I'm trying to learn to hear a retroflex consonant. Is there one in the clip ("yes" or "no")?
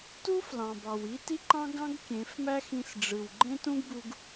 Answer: yes